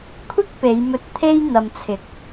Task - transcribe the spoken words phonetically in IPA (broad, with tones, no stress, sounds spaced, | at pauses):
kʷʰ ɪ˥ k̚ p e˨˧ j m ɵ˧ t̚ t̪ʰ e˧ j n̪ ɐ˨ m t͡sʰ ɪ˨˥ k̚